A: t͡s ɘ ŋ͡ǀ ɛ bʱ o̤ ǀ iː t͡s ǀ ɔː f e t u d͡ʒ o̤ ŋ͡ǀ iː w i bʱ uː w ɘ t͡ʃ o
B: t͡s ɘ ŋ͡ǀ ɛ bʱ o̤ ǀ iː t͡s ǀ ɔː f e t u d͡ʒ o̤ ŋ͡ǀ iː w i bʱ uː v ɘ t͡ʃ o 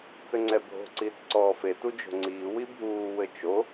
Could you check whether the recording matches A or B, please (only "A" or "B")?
A